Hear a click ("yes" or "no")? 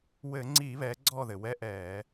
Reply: yes